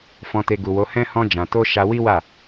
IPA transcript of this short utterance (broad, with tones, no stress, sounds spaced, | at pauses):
f ɔ̃˨ t e˨ ɡ u˨ w o˨˦ h ɛ̃˦ h ɔ̃˧ d͡ʒ ã˨ t o˧ ʃ a˧ w i˦ w a˦˨